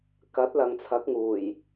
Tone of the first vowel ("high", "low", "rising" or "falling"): rising